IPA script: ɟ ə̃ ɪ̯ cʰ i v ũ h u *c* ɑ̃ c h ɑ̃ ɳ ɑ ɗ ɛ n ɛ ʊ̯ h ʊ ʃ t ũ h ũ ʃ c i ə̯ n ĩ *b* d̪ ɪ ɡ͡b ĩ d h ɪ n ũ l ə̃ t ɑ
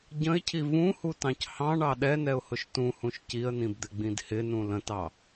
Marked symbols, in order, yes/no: no, yes

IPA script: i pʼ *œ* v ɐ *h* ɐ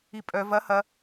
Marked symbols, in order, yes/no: yes, yes

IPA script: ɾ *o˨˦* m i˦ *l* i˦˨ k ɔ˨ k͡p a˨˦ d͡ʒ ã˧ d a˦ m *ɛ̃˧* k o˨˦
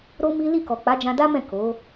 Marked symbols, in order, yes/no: no, yes, no

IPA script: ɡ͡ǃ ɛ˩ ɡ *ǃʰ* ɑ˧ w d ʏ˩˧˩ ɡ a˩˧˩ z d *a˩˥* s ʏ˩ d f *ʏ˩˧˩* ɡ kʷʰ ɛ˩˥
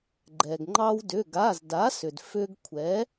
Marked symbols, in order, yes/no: no, yes, no

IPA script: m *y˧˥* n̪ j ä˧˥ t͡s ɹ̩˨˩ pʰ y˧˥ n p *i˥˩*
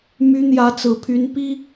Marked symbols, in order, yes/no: yes, no

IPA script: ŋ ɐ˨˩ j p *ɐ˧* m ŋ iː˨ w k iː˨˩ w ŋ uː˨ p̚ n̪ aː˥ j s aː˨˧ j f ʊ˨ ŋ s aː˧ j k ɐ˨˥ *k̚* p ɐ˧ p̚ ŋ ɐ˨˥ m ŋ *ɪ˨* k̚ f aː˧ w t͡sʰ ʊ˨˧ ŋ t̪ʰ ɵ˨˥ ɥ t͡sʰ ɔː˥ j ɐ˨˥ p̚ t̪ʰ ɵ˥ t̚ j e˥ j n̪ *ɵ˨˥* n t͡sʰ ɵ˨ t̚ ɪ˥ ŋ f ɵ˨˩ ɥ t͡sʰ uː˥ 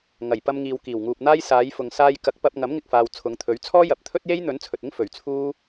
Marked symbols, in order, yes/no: yes, yes, no, yes

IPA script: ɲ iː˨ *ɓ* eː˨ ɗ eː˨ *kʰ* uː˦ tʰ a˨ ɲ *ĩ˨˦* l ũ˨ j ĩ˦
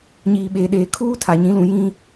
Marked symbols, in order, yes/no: yes, yes, yes

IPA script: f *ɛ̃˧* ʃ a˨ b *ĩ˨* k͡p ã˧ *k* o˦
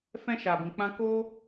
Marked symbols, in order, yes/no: yes, yes, yes

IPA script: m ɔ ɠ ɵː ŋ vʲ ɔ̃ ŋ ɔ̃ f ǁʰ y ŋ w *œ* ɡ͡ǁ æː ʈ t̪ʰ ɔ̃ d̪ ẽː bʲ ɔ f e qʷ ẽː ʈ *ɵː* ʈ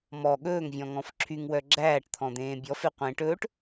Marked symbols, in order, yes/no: yes, yes

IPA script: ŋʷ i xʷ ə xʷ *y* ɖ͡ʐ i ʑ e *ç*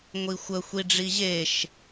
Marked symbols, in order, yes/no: no, no

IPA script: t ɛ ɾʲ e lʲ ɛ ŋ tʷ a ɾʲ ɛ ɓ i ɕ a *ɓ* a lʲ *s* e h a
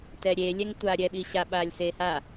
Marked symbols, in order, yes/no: yes, yes

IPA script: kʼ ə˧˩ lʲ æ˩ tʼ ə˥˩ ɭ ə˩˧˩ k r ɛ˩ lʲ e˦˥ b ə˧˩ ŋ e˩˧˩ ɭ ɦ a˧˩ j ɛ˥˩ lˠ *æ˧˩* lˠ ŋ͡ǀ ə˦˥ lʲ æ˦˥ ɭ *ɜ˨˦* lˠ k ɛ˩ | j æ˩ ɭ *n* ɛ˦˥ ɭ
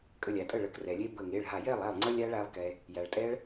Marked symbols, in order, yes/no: no, no, no

